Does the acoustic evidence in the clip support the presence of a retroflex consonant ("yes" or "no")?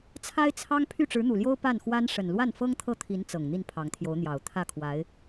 yes